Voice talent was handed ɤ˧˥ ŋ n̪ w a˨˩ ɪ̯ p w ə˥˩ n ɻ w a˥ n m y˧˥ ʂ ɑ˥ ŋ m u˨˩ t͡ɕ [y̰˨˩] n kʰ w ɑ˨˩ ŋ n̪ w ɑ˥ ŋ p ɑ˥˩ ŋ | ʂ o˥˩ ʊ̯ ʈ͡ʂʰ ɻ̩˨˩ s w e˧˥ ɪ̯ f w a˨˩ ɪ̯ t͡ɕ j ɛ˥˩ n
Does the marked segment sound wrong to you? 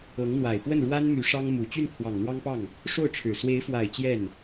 yes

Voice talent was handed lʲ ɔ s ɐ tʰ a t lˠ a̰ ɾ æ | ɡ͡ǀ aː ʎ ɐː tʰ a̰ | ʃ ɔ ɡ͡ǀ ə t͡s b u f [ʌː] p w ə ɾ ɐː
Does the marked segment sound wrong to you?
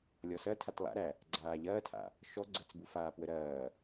yes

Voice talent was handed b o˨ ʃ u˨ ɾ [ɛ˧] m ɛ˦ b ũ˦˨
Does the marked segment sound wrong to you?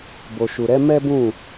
yes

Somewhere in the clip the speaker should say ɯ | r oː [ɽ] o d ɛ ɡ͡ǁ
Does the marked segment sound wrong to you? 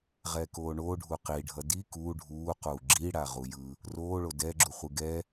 yes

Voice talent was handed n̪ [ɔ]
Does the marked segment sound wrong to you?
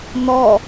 no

